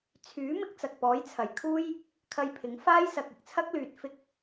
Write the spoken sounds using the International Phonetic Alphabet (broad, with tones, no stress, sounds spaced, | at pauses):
t͡sʰ yː˨˥ m ɪ˥ k̚ t͡s ɐ˨ k̚ p ɔː˨˥ j t͡sʰ ɐ˨˩ j kʰ uː˥ j | kʰ ɐ˧ j pʰ ɪ˨˥ ŋ f aː˥ j s ɐ˨ k̚ ɪ˨ k̚ t͡sʰ ɐ˥ k̚ l yː˨ t̚ f ɪ˥ k̚